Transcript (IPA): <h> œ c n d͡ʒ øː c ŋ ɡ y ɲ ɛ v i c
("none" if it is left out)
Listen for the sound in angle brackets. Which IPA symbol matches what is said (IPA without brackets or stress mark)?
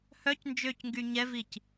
h